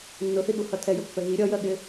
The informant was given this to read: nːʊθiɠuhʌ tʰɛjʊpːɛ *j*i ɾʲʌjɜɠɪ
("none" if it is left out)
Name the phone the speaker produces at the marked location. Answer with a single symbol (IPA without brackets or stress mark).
ɣ